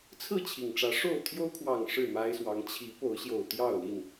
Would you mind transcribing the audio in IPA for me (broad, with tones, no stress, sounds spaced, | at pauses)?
t͡sʰ ɹ̩˥˨ t͡ɕʰ i˨˩ ŋ ʈ͡ʂ ä˨˦ ʂ o˥˨ ʊ̯ t̪ʰ j o˦ ʊ̯ kʰ w ɑ˨˩ ŋ ʂ ɻ̩˥˨ m a˦ ɪ̯ s w ɑ˨˦ ŋ t͡ɕʰ i˨˦ p o˨˦ ʊ̯ ɕ j o˨˩ ʊ̯ t̪ j ɑ˥˨ ʊ̯ l i˥˨ n